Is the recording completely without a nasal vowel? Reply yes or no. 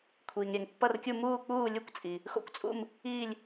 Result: yes